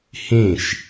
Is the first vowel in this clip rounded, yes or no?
no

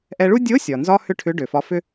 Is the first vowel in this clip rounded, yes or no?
no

